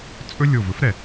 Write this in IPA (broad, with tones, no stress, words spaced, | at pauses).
t͡sʼɵ˥ lʲo˧˩vɵ˥f ɾɛ˧˩